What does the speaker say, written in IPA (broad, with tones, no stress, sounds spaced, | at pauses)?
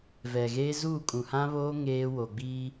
v ɛ˨ ɣ eː˦ z uː˦˨ kʼ ũ˨ h ã˦ β oː˦ ŋ eː˦ w o˨ ɡ͡b iː˦